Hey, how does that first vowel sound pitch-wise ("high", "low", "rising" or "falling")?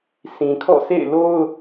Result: low